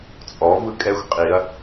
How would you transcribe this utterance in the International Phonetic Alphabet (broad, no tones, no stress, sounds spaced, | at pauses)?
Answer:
t͡sʼ ɔ v ɯ kʼ ɛ xʷ qʼ i ɐ̯